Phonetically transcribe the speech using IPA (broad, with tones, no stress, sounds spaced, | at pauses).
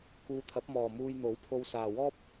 k uː˧ t̪ʰ ɐ˨˥ p̚ m ɔː˨ m uː˧ j n̪ o˨˥ w pʰ o˧ w s aː˨ w ɔː˥ p̚